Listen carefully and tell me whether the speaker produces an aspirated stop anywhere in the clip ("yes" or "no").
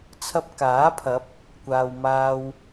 yes